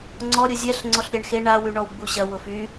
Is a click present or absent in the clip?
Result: present